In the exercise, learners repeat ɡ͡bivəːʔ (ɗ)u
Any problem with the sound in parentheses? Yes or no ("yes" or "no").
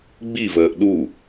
no